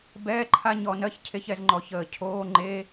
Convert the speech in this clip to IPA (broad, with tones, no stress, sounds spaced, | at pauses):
b ɛː˧˥˧ ǃʰ a˧˥˧ ɲ ɔ˧˩˧ n ɜ˧˥˧ ç cʰ e˧˥˧ ç ɛ˦˨ z ŋ͡ǃ ɔ˧˩˧ ç əː˧˩˧ cʰ oː˧˥˧ ŋ͡ǃ e˧˥˧